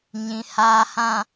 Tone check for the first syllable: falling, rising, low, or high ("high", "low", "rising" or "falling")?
low